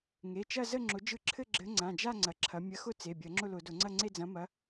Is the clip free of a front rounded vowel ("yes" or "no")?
yes